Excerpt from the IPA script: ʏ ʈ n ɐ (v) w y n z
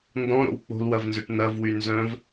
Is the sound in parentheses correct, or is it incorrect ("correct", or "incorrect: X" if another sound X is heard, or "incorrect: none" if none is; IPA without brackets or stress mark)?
correct